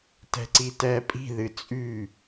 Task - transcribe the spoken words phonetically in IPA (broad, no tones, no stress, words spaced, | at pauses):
tɛ̤ǀitɛːpʼi̤ ðɨt͡sʼy